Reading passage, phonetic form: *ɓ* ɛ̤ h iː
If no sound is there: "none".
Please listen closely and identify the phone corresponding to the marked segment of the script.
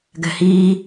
ɡ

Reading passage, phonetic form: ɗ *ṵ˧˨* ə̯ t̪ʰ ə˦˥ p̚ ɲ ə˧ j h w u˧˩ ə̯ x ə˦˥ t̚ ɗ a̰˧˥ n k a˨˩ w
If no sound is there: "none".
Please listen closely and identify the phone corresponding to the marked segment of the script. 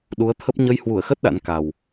u˨˦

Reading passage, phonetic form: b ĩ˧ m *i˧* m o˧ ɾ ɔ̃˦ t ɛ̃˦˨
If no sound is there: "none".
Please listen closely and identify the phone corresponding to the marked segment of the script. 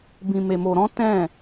e˧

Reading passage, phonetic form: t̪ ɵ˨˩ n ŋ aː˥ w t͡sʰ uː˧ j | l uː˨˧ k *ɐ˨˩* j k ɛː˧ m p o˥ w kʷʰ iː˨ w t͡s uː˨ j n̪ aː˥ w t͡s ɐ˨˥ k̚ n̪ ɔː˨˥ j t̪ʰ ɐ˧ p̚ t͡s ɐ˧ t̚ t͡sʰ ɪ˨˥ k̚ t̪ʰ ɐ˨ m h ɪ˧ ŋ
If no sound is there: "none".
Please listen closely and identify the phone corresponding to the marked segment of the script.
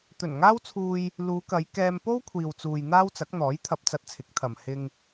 ɐ˨˧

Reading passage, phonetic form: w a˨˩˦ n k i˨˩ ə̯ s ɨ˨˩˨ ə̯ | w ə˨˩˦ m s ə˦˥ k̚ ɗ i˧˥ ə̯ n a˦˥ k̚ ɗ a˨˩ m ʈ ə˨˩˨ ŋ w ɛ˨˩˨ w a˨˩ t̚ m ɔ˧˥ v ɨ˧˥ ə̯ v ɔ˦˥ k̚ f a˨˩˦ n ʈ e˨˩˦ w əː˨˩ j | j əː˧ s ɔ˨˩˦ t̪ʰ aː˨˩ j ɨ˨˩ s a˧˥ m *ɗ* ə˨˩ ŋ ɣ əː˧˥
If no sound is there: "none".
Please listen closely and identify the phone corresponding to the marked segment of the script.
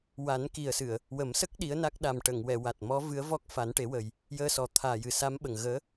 ɓ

